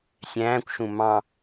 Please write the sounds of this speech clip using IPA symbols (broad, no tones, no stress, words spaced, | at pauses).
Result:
sʲæ̃ːkʷʃũ mɑ̃